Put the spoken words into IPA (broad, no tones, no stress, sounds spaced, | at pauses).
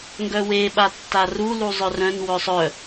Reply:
ŋ ɡ œ w e ɓ a tː a r u l u zˤ œ r œ̃ n w œ sˤ œ